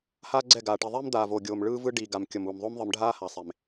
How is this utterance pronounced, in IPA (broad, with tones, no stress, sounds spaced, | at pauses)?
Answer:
h aː˦ ɡ͡ǀ ɛ˦˨ ɡ aː˨ ʈ i˨ ðˤ e˦ m d̪ aː˨ v oː˨ ɡʲ oː˨ m ɭ ɯː˦ v ɯ˦ ɖ iː˨ ɡ a˨ m kʲ ʌ˨ m uː˨ m ðˤ o˦ m ðˤ ɯ˨ m ɖʱ aː˦ h a˨ sˤ e˨ m